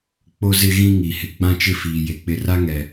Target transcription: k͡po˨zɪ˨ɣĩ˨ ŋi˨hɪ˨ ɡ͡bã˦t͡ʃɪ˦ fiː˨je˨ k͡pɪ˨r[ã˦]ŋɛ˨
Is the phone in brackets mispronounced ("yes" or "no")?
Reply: yes